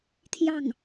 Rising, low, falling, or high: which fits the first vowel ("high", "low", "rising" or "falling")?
falling